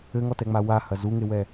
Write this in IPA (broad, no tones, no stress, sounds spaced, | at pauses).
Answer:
ɘ ŋ ɔ t ɛ ŋ͡m a w a h ɐ z u ŋ e w ɛ